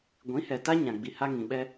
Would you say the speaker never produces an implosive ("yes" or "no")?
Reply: no